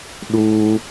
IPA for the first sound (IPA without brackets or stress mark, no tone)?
ɗ